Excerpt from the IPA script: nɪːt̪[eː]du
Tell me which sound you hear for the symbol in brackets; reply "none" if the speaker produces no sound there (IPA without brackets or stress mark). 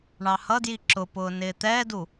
ɛː